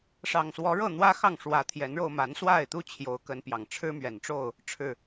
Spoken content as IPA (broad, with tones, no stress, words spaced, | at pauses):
ʂɑ˨˩ŋswɔ˨˦ɻɤ˥˨ n̪wä˦xɑ˥˨ŋʂwä˨˦ t̪ʰjɛ˨˦nɻo˧ʊ̯ma˨˦n swa˥˨ɪ̯t̪u˦ t͡ɕʰjo˨˦ʊ̯kə˨˦npjɑ˨˩ŋ ʈ͡ʂʰɻ̩˦mɥɛ˨˩nʈ͡ʂo˥˨ʊ̯ | ʈ͡ʂʰɻ̩˨˩